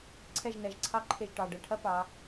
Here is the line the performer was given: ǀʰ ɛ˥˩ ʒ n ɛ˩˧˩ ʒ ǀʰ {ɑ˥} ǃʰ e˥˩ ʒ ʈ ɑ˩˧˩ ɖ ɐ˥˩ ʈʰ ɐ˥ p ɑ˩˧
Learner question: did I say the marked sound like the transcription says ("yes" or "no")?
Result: yes